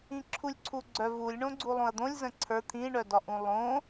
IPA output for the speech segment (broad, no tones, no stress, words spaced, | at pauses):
ĩǁʰulʲǀʰuɡ͡ǀœ vulʲɳõ ɡ͡ǀulˠõɐ̯d̪õlʲ zə̃ǀʰə˞ t̪ʰĩɳœdɒʔũ lˠõ